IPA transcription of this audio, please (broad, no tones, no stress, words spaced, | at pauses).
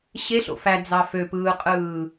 ɕeɬo̰ fæd͡zɑ føpɯːqʼɯː